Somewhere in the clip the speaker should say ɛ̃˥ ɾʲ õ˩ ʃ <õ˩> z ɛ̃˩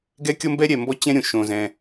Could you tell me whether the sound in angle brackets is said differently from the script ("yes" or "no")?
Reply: no